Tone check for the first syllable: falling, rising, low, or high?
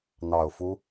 low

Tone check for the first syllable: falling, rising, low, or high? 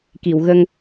low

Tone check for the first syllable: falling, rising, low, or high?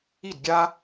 falling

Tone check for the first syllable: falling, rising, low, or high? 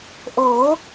rising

